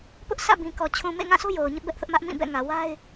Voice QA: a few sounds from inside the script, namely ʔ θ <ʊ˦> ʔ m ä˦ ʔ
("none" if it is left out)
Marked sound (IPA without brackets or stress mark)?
ʊ˦